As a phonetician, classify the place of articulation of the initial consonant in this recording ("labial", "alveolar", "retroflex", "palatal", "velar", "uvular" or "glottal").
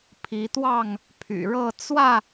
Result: labial